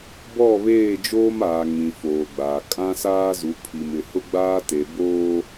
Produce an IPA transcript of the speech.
bɔ˦˨βeː˦˨d͡ʒoː˦maː˨ ŋĩ˨ foː˨ɡ͡baː˨ kʼã˦saː˦zu˨˦ pʰi˨mɪ˨hʊ˦ɡ͡baː˦ te˨ boː˦

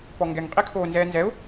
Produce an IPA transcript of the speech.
pɔŋɡɛŋ qʼikʰoːnzɛːnzɛʊ̯

